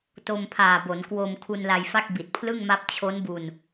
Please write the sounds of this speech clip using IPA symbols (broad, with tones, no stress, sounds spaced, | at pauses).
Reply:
t o˧ m pʰ aː˨˩ b o˩˦ n k w o˧ m kʰ u˧ n l a˧ j f a˥˩ k̚ b i˨˩ t̚ pʰ l ɯ˥˩ ŋ m a˦˥ p̚ t͡ɕʰ o˦˥ n b u˧ n